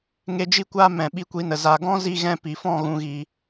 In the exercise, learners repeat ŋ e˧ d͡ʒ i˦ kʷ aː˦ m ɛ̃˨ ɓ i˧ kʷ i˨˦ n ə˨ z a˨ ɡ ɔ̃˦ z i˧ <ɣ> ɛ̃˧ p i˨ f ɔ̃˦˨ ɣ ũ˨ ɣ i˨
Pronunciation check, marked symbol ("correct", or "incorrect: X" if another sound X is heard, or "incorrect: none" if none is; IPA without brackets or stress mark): correct